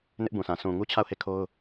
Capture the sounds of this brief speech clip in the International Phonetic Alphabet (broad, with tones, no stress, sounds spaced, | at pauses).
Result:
n ɪ˦ ʔ b ũ˨ sʰ ã˨ s ũ˨ ŋ u˦ t͡ɕʰ a˦˨ ʊ̯ h e˦˨ kʰ o˦ ʊ̯